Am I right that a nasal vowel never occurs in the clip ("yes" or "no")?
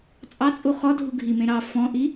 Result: no